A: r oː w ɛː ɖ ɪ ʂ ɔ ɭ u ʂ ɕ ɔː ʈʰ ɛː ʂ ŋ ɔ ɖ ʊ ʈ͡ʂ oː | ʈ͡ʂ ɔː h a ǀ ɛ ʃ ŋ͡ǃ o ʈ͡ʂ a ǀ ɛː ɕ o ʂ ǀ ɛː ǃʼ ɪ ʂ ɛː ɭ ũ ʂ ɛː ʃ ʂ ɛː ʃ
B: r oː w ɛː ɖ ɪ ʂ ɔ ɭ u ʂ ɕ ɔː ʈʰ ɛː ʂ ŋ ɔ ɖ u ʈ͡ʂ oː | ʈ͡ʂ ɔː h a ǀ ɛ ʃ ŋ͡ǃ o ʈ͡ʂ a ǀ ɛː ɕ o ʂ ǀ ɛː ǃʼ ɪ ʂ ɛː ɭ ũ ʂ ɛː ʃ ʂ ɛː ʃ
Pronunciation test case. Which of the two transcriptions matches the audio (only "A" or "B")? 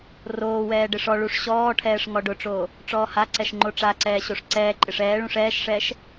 A